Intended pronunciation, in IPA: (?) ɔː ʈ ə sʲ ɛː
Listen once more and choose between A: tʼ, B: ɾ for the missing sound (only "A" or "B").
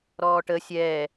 B